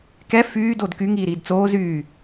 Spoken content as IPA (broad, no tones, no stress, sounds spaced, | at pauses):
k ɛ f yː d o d k y ŋ iː ɾ iː d t͡s oː z yː